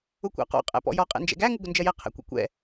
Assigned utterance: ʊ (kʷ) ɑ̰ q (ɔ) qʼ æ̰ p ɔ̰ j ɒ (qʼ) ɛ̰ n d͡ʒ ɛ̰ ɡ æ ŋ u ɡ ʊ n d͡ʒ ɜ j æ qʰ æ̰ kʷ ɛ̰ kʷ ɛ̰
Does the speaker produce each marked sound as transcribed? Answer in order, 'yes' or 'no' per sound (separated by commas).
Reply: yes, no, yes